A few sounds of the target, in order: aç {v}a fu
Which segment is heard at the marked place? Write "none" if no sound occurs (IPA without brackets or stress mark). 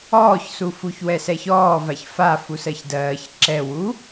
f